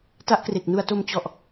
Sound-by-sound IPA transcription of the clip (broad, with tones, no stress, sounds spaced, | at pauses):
t a˦˥ ʔ k r e˨˩ k̚ n u˧ a̯ t o˧ m t͡ɕ ɔ˨˩ ʔ